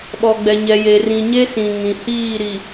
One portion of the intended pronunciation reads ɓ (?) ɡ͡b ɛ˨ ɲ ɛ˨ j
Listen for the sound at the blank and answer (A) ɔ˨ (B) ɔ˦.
A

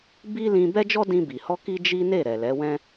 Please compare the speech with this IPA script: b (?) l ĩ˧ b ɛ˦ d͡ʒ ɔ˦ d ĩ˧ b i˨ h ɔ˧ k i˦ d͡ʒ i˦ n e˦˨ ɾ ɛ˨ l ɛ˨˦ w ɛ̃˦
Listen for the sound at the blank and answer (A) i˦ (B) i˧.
A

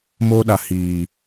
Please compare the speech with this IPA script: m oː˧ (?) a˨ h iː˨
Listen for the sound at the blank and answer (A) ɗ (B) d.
A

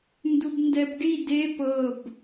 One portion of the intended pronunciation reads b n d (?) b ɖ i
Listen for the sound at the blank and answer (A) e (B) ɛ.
B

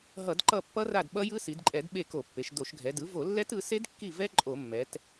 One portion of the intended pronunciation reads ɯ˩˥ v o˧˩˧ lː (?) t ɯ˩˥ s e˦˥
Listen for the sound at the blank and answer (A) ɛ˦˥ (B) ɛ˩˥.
A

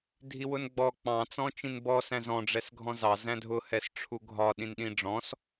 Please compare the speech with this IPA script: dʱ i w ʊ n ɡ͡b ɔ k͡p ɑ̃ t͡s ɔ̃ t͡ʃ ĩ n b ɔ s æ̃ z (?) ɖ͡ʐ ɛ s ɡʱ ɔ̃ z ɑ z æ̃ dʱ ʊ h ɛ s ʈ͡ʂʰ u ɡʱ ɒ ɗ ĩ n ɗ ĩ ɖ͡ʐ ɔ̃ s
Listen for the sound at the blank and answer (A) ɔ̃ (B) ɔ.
A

